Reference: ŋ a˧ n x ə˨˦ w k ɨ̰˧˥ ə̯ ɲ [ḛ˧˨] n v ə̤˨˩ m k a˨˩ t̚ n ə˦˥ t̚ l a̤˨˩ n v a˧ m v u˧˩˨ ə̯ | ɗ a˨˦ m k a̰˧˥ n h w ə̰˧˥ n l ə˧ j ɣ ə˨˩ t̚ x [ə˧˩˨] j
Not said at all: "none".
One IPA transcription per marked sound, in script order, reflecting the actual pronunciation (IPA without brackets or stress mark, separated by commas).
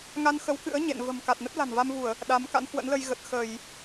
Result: ḛ˧˨, ə˧˩˨